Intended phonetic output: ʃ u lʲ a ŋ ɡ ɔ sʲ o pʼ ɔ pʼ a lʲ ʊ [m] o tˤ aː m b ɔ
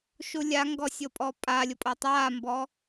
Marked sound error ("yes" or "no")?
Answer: yes